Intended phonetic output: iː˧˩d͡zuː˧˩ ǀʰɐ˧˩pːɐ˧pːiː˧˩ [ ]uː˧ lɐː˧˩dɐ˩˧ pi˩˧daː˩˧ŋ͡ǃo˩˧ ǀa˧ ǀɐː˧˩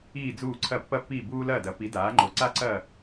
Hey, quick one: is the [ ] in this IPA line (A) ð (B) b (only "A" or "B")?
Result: B